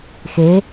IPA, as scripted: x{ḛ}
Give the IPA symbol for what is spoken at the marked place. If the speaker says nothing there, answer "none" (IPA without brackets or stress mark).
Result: e